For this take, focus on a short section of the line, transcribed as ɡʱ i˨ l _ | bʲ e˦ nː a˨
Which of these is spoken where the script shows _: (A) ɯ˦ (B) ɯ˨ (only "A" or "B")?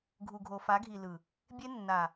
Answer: B